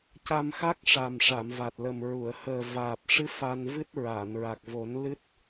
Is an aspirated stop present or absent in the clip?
absent